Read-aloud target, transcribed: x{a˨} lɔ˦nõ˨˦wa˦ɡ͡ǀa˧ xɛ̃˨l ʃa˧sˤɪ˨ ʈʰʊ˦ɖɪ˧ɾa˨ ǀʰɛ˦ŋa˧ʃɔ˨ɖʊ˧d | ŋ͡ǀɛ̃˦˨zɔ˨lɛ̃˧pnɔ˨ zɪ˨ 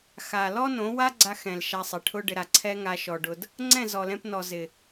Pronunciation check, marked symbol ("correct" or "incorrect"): correct